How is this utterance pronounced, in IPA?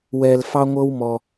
w ɛ˧ l f ɑ˦ ŋʷ ɤ˦ w m ɔ˧

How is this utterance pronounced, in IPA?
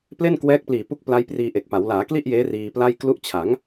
p l e˥˩ n k w ɛː˦˥ k̚ p l iː˨˩ p u˦˥ k̚ p l a˦˥ j p r iː˧ ʔ e˨˩ k̚ p a˩˦ w l aː˩˦ k l i˥˩ ʔ j eː˦˥ r iː˧ p l a˥˩ j k l u˦˥ ʔ t͡ɕʰ a˩˦ ŋ

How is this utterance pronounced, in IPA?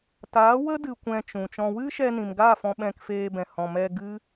t aː˨˦ w ə˦ d ɨ˨ kʷ ɛ̃˨ t͡ʃ ũ˨ t͡ʃ ɔ̃˨ w ɨ˦ ʃ ɛ˧ n ĩ˨ m ɡ aː˦˨ f ɔ̃˧ ɓ ɛ̃˧ k f eː˧ b ɛ̃˨ h ɔ̃˨ m ɛ˧ ɡ ɨ˦

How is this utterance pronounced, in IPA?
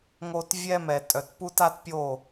ŋ o˦ t vʲ ɛ˦ m ɛ˨ tʼ œ˨ t p u˦ t a˦ t pʲ o˦˨

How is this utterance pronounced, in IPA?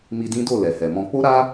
m i˧ d ĩ˦ d o˦˨ l ɛ˨ h ɛ˨ m ɔ̃˧ k͡p o˦ ɾ a˦

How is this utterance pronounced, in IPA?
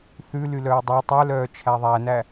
θ ʉ l y l œː dˤ æ tˤ œ l œː t͡ʃʰ æ ðˤ æ n æ

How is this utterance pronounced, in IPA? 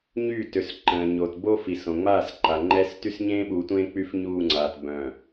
ɲ y˦˨ t ø˨ s ǃ ə̃ː˨ ɲ o˨ t b o˦ f i˨ s õ˨ ŋ͡m aː˦˨ s ǃ a˨ ŋ͡ǃ ɛ˦ s t y˦ s ɲ ẽː˦ ɓ uː˨ tʷ ẽː˦ k͡p y˦ f ɲ uː˦˨ ŋ͡ǀ aː˨ t b œ̃˨

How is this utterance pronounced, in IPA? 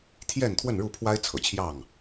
t̪ʰ j ɛ˥˨ n t̪ʰ w ə˥˨ n ɻ u˥˨ pʰ w a˦ ɪ̯ t͡sʰ ɤ̰˨˩ t͡ɕʰ j ɑ˥˨ ŋ

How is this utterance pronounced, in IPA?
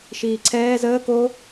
ʃ iː ǀʰ ɛː z əː k o

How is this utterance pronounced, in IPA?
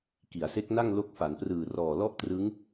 k i˩˦ a̯ s e˦˥ k̚ n a˥˩ ŋ l o˦˥ k̚ f a˩˦ n p r ɯː˨˩ r ɔː˨˩ l ɔ˥˩ ʔ t r ɯ˦˥ ŋ

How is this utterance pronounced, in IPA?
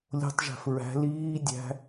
lʲ o̤ tˤ ʒ æ̤ f ɹ æ̤ l iː dʲ æ̤

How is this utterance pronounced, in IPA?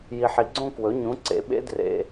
j i˨ ħ i˨ ɡ͡ǀ õ˥˧ k w ɵ˩˥ ɲ ũ˩˥ ǀ ḛ˩˥ ɓ ḛ˧˥ d r ḛ˨

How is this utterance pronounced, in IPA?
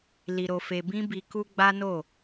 l i˨ ɾ o˨ f e˨ b ĩ˧ b i˧ k u˦ ɡ͡b a˦ n o˦˨

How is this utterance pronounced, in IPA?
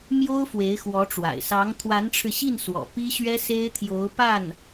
m j o˥ ʊ̯ f w e˧˥ ɪ̯ x w ɔ˧˥ ʈ͡ʂ w a̰˨˩ ɪ̯ s ɑ˧˥ ŋ t̪ʰ w a˧˥ n ʈ͡ʂʰ ɻ̩˧ ɕ i˥˩ n s w ɔ̰˨˩ p i˥ ɕ ɥ ɛ˥ s e˥ ɪ̯ t̪ʰ j o˧˥ ʊ̯ p a˥˩ n

